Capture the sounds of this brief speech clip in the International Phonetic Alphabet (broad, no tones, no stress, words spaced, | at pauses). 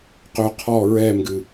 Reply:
qø qʰɔ ɹɛmɡɨ